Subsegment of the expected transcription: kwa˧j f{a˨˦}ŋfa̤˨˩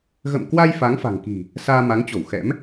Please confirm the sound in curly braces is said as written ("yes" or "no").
yes